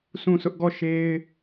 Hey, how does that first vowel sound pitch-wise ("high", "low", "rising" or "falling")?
falling